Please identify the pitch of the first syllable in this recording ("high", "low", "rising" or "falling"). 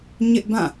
high